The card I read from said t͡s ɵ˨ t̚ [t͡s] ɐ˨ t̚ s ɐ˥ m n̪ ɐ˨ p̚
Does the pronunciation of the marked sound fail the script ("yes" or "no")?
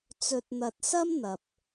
yes